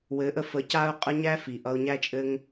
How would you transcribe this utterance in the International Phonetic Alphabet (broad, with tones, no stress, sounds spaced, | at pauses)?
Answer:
w ɘ˨˦ ʔ ə˧ f ə˨˦ c a˦ ʊ̯ qʼ ə˦ ɲ æ˦ f i˨ ʔ ʌ˧ ʊ̯ ɲ æ˦ t͡ʃʼ ɘ˦ ŋ